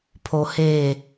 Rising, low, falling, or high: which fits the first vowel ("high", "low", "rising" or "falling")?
low